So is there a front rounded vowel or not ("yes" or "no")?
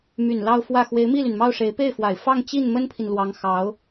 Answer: yes